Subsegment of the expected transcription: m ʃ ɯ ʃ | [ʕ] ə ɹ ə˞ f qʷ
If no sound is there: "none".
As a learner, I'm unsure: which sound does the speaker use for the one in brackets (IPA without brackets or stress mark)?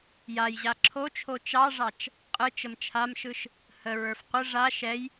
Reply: h